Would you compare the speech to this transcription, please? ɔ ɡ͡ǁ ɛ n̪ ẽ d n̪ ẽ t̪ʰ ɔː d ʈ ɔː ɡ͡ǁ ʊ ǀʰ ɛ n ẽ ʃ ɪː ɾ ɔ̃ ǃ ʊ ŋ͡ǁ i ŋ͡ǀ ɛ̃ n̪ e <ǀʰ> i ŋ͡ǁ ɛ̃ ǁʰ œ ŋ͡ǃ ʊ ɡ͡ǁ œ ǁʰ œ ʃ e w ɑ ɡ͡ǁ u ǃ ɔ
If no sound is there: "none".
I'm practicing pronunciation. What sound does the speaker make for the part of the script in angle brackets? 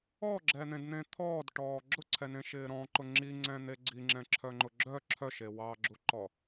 ɡ͡ǀ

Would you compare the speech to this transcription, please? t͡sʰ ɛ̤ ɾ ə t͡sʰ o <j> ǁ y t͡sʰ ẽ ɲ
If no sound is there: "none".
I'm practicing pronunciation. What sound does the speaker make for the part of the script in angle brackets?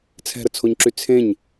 ɲ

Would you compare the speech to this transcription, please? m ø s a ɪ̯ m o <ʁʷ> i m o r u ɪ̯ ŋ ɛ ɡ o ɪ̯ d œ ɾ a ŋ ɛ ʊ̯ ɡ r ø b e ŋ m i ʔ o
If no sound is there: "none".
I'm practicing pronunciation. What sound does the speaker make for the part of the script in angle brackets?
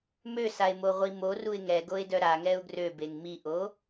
ʁʷ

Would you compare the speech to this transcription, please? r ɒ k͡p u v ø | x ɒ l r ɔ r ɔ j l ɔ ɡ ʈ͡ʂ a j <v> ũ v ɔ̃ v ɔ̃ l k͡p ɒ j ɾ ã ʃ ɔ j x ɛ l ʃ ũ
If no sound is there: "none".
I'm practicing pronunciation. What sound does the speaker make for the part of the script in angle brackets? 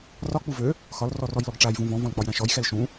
v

